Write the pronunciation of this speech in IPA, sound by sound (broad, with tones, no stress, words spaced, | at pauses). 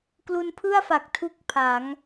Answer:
klu˧npʰɯ˥˩a̯fa˨˩k̚ tʰu˥˩k̚pʰa˩˦ŋ